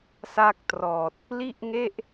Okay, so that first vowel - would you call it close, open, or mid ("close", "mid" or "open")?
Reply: open